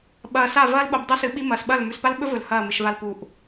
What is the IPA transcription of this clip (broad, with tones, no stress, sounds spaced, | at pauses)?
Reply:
ɓ ɐː˨ s a˦˨ v ɐː˦ l ɓ o˨ b dˤ u˦ s ɨ˨˦ ɓ i˦ m ɐː˨ s ɓ ɐ˦˨ l m ʉ˨ s p a˦ l ɓ ɵ˦ v ɵ˨ l h ɐː˦˨ m ɨ˨ ʃ v a˦ l p u˨ ʔ